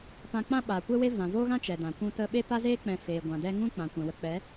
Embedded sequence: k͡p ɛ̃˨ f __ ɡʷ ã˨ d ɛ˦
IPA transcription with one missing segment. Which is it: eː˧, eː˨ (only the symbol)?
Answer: eː˨